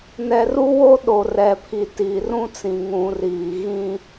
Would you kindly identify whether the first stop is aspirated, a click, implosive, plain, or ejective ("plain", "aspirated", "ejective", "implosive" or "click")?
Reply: implosive